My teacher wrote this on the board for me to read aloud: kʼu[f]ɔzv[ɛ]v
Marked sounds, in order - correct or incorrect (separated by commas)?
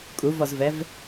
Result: incorrect, correct